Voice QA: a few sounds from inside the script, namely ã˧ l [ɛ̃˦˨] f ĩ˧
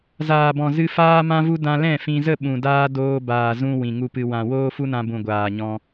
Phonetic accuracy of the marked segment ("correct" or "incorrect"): correct